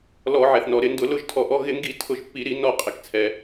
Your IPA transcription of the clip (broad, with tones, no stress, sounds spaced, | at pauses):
l ɔ˧˩˧ ʕ ɛ˩ θ n ɔ˩ ɾ ɪ˧˩˧ n d ʊ˧˩˧ l ʊ˥˨ ʒ tʰ ɔ˧˩ ʔ ɔ˧˥˧ ɣ ɪ˧˩˧ ŋ ɡ i˧˩˧ tʰ ʊ˧˩ ʒ pː i˧˩˧ ɾ i˧˩˧ n ɔ˧˩ qʼ ɪ˩ k t͡sʰ ɛ˩